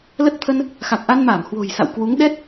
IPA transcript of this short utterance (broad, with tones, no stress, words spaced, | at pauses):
lə˦˥t̚t̪ʰə˧n | xa˨˩k̚ʔa˧nmaː˧˩m hwo̤˨˩jsa̰˧˨w kwu˨˦ŋ ɗɛ˦˥t̚